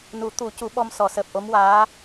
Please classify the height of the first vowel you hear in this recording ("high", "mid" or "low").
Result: high